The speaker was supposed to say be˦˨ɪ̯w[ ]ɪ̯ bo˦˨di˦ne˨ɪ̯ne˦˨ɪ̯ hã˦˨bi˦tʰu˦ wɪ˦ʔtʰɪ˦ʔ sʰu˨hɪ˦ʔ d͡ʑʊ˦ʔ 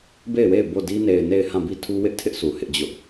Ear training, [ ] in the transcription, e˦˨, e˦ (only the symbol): e˦˨